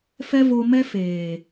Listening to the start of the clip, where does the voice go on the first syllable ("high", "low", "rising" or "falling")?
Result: high